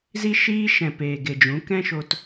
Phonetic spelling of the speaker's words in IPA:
z i˦ ʃ iː˦ ʃ ɛ̃˨ p eː˨ ɡ e˨ d͡ʒ ũ˨˦ k ɛ̃˦ ʃ o˧ t

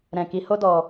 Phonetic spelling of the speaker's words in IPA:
ɾ ɛ̃˨ k i˨ h o˧ d ɔ˨

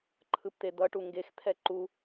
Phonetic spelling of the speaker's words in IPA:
ǃʰ ɯ p t̪ e d̪ ʌ ʈ u ŋ ɡ e x t̪ʰ ɛ ǃ u

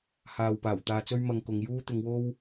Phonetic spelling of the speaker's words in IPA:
h aː˨ w p aː˨˩ w t̪ aː˧ t͡s ɵ˥ ɥ m ɐ˧ ŋ k ʊ˨˧ ŋ j uː˥ t̪ ɪ˨˧ ŋ w o˥ w

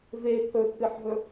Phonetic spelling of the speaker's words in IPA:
v e t̪ʰ ɵ t̪ʰ ɨ ħ ɦ ɵ

